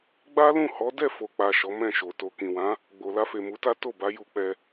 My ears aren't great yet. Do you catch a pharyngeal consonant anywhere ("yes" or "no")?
no